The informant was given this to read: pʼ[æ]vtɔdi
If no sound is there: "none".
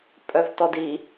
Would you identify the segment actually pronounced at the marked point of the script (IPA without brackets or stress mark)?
œ